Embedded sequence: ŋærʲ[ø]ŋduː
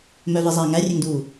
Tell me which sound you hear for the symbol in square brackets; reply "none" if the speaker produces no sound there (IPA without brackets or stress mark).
ø